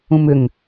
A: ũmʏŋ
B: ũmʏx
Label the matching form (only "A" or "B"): A